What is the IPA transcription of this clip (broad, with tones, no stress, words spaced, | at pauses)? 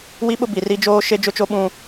wi˦ɓʊ˦bi˨ri˦ d͡ʒoː˦ ʃe˦d͡ʒʊ˦t͡ʃo˦ ɓũ˦